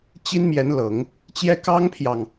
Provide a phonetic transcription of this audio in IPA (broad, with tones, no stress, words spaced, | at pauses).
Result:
t͡ɕi˥nmjɛ˧˥nlɤ˨˩˦ŋ | t͡ɕjɛ˥ kɑ˥ŋpʰjɑ˨ŋ